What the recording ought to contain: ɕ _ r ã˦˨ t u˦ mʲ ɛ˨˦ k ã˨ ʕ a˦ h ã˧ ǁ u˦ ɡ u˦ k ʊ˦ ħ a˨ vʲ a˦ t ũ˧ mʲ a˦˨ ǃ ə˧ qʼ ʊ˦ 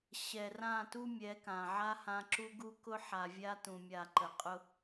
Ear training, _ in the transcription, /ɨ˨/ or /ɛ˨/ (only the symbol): ɛ˨